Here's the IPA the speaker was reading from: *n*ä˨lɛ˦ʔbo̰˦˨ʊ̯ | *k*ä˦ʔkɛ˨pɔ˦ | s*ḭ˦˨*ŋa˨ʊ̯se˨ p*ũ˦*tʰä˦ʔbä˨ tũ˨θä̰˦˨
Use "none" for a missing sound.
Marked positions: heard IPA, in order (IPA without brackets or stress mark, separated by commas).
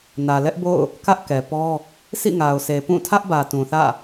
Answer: n, k, ḭ˦˨, ũ˦˨